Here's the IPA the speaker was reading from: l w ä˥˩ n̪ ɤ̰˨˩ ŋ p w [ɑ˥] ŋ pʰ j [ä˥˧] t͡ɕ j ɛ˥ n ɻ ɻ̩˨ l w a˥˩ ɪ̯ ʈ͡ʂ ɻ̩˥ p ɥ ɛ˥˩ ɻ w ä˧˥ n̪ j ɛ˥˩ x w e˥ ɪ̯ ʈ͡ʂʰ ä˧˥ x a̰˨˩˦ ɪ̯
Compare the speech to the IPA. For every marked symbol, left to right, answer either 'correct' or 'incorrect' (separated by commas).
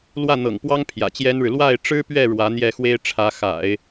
correct, incorrect